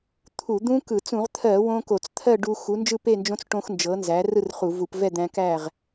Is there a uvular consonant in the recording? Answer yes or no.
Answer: yes